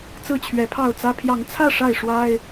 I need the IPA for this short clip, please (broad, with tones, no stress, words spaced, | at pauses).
t͡sɹ̩˥˨t͡ɕʰɥɛ˨˦pʰɑ˥˨ʊ̯t͡sä˦ pʰjɑ˨˦ŋt͡sʰä˥˨ ʂa˥˨ɪ̯ʂwa˦ɪ̯